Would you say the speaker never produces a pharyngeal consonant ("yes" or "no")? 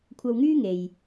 yes